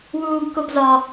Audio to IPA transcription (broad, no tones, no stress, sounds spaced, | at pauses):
w uː ɡ k o ɡ z ɒ